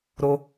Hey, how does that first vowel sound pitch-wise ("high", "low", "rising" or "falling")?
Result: high